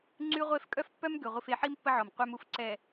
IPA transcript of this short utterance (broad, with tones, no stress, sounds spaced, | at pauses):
ŋ͡ǀ y˦ ʁʷ e˦ f kʼ œ˦ f pː œ˦ m ɡ ø˨ ʁʷ i˨ f e˨ ħ i˦ m pː ə˦ ʕ ɔ˨ m qʷ œ˦ m u˦ f ǀ ɛ˨